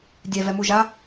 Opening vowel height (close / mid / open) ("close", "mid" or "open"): mid